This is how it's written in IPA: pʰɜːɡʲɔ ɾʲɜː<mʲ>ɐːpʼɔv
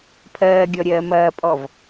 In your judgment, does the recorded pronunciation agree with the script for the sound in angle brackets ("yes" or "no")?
no